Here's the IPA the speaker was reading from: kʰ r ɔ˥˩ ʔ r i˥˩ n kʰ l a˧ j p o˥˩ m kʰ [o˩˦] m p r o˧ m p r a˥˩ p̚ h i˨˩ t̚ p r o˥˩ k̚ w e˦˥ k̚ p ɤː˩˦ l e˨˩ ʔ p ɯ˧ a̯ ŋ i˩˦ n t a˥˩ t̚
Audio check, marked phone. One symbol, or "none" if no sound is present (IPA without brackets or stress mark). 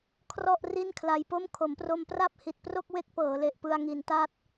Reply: o˩˦